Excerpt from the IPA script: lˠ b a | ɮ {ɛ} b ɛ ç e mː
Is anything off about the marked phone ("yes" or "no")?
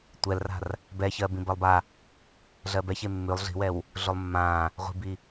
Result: yes